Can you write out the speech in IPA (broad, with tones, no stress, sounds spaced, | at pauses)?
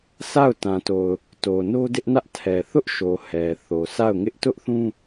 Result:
sʰ a˦˨ ʊ̯ t ã˨ t o˨ ʊ̯ | t o˨ n o˦ d ɪ˦ ʔ n ä˦ ʔ tʰ ɛ˨ θ ʊ˦ ʔ ʃ o˨ h ɛ˨ θ o˨ sʰ a˦˨ ʊ̯ ŋ ɪ˦ ʔ t ʊ˦ ʔ θ ũ˦